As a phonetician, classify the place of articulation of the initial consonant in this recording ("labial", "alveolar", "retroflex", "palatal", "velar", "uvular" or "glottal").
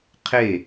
uvular